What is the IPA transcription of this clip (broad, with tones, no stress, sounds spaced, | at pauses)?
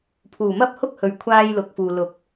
pʰ uː˨˩ m ɐ˥ p̚ h ʊ˥ k̚ h ɵ˨ ɥ kʷʰ aː˧ j l ʊ˨ k̚ f uː˨ l ʊ˨˥ k̚